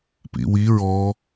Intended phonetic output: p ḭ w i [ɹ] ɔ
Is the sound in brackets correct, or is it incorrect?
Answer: correct